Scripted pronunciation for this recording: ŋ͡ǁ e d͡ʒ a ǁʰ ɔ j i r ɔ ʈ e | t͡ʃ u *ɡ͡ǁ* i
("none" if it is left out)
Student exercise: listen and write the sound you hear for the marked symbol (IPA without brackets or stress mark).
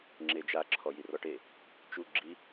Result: ɡ͡ǁ